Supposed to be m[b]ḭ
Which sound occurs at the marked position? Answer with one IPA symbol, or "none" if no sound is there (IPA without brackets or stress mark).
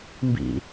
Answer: b